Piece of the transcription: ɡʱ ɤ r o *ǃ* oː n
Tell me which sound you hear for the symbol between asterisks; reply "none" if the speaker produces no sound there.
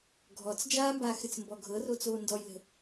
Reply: t͡s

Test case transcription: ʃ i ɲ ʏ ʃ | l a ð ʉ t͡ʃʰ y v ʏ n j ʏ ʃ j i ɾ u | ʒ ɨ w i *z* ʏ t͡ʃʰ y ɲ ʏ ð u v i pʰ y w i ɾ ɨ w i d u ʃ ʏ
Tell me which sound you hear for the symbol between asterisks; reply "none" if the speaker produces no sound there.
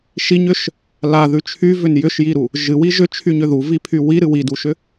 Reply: ʒ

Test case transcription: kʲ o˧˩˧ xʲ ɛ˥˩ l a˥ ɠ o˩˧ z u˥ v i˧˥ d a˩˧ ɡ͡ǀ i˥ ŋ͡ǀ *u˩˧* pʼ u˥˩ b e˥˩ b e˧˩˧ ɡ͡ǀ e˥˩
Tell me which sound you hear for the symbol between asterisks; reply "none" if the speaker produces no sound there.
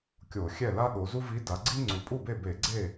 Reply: u˩˧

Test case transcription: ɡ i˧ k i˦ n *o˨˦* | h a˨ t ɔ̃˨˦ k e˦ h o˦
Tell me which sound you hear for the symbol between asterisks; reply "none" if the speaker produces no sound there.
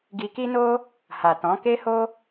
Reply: o˦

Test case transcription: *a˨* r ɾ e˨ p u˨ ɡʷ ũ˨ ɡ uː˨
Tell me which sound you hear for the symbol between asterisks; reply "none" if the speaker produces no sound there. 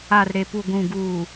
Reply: a˨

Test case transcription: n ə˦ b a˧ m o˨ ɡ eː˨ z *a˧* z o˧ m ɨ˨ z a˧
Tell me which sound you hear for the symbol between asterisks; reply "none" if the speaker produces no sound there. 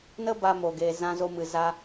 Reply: ã˧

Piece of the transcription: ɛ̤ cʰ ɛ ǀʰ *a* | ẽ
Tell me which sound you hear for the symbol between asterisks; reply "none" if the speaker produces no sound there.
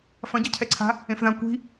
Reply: a̤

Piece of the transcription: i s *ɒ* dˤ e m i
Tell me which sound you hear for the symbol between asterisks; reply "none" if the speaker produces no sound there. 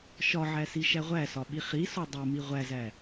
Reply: ɒ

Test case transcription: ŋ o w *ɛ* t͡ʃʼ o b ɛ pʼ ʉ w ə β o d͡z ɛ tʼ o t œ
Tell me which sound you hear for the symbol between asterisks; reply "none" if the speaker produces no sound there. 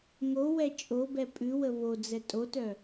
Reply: ɛ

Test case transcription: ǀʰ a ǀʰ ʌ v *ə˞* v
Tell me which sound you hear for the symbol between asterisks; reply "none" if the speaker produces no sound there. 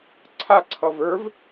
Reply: ə˞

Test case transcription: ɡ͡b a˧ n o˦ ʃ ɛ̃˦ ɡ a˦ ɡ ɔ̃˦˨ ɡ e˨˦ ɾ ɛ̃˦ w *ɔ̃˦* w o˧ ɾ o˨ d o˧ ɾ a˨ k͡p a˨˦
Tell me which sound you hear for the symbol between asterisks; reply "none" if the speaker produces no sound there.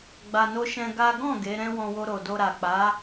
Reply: ɔ̃˧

